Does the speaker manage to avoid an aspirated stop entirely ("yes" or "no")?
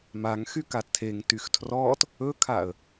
no